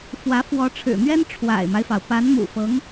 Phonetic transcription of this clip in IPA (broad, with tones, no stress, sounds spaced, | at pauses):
f w ä˧˥ f w ɔ˧˥ ʈ͡ʂʰ ɻ̩˨˩ n̪ ɥ ɛ˥ n ʈ͡ʂʰ w a̰˨˩ ɪ̯ m a˦ ɪ̯ f ɑ˩ ʊ̯ p a˧˥ n m ṵ˨˩ f ɤ˧˥ ŋ